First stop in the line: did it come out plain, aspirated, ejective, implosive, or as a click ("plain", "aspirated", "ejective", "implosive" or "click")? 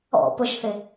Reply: plain